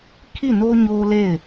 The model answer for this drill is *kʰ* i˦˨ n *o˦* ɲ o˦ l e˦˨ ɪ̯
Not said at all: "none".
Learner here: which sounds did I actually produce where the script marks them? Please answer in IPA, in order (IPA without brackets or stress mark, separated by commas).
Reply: kʰ, o˦